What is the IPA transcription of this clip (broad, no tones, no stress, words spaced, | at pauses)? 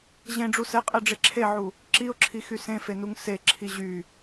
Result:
ʑẽɖ͡ʐu sɛqʼɛɖ͡ʐe ǁʰeʕu | ǁiʊ̯ǁʰixy sẽfenuŋ seǁʰi ʑy